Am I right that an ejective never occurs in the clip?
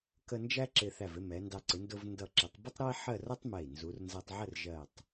yes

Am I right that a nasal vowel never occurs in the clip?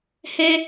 yes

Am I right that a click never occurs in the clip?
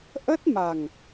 yes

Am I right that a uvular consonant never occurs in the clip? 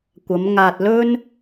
yes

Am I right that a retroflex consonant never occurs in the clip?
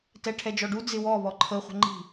no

